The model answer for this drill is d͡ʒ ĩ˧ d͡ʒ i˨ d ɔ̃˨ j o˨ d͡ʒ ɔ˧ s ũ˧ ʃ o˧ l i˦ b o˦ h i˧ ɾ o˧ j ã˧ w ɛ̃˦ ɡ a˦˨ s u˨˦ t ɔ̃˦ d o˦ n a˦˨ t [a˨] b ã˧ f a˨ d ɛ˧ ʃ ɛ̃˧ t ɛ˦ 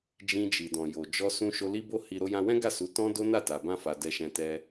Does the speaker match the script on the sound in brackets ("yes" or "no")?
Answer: yes